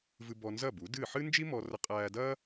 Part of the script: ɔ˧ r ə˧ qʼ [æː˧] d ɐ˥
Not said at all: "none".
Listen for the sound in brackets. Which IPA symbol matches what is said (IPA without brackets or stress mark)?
æː˧